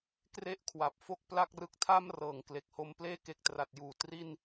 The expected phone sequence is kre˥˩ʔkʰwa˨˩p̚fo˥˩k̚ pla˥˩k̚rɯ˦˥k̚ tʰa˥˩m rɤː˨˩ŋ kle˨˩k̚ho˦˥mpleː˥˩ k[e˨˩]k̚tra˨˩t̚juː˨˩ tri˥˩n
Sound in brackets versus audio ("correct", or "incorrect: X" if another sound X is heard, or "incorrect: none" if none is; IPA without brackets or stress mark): correct